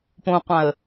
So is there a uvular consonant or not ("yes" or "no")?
yes